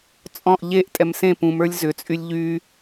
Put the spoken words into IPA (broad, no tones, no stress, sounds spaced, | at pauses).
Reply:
t͡sʼ ɔ̃ ʔ ʎ e ʔ tʼ ɛ m s ẽ p ũ m ə˞ lʲ z ʏ t͡sʼ y lʲ ʎ y